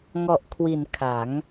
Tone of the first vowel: low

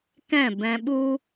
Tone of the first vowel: falling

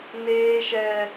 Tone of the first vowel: high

